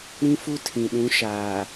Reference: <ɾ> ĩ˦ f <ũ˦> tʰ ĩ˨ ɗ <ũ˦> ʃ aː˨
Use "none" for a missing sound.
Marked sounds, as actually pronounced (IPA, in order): ɾ, u˦, ũ˨˦

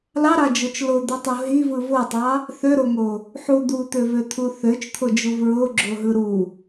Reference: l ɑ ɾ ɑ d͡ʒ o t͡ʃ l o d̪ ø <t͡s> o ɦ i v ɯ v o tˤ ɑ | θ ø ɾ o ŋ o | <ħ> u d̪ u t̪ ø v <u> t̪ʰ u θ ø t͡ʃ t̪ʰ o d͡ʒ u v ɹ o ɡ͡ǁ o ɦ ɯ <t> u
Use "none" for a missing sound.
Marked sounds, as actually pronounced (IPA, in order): tˤ, ħ, ø, ɾ

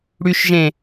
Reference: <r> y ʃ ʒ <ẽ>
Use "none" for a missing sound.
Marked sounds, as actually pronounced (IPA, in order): ɽ, ẽ

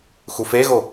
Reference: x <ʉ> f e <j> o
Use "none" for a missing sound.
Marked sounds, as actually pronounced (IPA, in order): u, ɣ

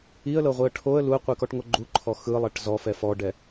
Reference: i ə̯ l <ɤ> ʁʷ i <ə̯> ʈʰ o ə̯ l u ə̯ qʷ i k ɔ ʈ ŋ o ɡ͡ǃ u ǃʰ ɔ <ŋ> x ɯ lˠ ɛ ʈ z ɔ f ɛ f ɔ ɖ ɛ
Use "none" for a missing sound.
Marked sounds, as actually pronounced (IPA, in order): ɤ, ə̯, none

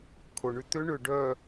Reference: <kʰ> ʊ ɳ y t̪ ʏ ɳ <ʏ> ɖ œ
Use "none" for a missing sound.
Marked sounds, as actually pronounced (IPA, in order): kʰ, ʏ

